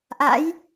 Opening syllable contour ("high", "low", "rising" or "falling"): rising